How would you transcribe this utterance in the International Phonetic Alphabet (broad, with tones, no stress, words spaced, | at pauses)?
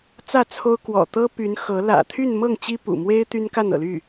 t͡sä˥˩t͡sʰo˥ʊ̯ kwɔ̰˨˩t̪ɤ˥ py˧˥nxɤ˧˥ lä̰˨˩ t̪ʰy˥˧nmɤ˥˩ŋ t͡ɕi˥pṵ˨˩ mwe˥ɪ̯ t̪y˥nka˥˩nɤ̰˨˩ly˥˩